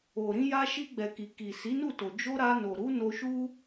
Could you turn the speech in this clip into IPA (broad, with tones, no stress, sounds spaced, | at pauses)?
o˨ ɾ ĩ˧ j a˧ ʃ i˧ ɡ͡b ɛ˨ k i˨ k i˨ s i˨˦ n u˦˨ t o˨ d͡ʒ o˧ ɾ a˧ n o˨ ɾ u˨˦ n o˧ ʃ u˦